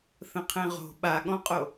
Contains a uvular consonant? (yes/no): yes